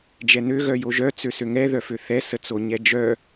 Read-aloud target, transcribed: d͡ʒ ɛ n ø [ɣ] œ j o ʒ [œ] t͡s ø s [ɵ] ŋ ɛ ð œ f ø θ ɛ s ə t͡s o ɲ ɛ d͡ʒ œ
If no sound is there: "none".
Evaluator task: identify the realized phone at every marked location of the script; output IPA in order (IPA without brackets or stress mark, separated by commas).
ɣ, œ, ø